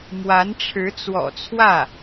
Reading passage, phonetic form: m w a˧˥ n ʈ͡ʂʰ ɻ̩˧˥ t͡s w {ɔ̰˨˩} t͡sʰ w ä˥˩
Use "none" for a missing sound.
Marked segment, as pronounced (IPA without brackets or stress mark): ɔ̰˨˩